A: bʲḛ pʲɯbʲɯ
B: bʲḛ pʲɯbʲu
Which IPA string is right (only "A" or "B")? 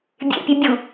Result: B